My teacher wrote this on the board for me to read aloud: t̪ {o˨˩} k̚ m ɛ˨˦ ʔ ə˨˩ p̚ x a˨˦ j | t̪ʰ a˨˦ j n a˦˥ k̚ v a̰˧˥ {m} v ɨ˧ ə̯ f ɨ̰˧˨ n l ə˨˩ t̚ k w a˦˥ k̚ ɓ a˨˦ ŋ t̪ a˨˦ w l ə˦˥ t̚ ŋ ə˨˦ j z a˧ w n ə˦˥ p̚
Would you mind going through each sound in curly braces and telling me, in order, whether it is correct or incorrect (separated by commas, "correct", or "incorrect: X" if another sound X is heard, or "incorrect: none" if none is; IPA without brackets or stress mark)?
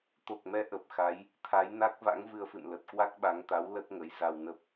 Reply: correct, incorrect: ŋ